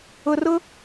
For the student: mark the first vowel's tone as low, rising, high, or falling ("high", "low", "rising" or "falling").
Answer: low